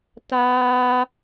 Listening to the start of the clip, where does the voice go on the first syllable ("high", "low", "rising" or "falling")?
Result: high